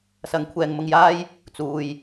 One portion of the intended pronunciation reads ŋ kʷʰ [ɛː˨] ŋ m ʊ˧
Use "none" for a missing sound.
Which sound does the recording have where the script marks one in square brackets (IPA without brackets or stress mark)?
ɛː˨